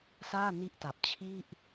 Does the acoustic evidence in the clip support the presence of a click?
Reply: no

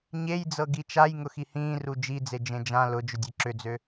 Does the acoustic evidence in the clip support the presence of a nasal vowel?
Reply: yes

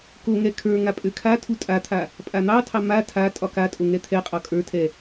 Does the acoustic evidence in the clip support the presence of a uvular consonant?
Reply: yes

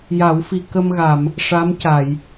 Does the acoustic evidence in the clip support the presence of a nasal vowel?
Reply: no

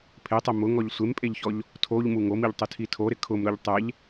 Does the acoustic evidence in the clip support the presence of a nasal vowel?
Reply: no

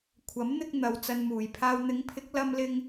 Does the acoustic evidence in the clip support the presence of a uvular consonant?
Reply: no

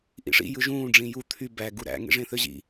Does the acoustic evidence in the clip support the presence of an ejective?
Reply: no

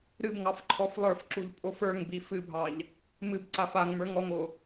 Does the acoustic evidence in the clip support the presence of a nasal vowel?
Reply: no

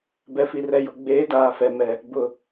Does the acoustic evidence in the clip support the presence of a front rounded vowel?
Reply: no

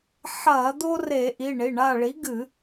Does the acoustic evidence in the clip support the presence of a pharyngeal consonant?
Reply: yes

